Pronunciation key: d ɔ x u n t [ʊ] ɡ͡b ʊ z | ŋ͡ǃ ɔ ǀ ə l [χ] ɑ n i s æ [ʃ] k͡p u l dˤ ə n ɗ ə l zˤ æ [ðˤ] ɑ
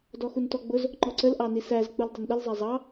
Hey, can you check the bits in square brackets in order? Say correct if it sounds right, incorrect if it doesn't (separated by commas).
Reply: incorrect, incorrect, incorrect, incorrect